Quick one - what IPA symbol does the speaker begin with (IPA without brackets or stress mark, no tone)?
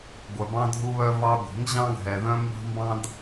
ɡʷ